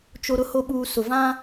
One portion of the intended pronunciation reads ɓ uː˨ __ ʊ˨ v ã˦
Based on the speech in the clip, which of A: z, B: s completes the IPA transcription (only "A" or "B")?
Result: B